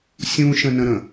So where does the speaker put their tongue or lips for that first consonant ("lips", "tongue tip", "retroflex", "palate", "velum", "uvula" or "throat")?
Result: tongue tip